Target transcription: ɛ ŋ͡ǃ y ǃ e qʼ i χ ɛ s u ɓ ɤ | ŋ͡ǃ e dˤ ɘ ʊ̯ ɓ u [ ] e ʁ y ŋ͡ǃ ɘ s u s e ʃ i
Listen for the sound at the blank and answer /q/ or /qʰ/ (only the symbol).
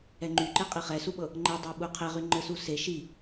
qʰ